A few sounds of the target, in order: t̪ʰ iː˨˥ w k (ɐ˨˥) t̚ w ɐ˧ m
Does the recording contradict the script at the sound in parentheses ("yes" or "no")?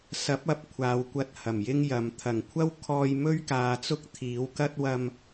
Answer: yes